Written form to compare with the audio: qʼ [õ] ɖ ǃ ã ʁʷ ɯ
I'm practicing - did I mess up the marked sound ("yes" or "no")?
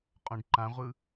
no